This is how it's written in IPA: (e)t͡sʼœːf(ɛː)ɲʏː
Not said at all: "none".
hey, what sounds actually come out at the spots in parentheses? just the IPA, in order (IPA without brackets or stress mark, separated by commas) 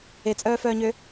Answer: e, œː